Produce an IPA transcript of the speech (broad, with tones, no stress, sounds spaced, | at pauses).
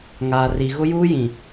ŋ aː˨ r i˨ ɣ ʊ˦ j uː˦ j ĩ˨